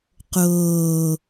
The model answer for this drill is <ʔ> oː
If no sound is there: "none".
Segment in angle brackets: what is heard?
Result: q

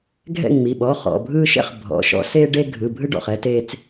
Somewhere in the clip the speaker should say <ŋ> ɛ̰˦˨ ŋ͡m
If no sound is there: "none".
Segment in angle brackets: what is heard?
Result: ɡʱ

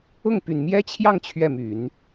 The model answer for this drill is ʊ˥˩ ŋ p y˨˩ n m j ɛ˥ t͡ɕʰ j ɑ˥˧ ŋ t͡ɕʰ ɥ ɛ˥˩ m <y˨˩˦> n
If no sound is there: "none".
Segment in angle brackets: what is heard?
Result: y˨˩˦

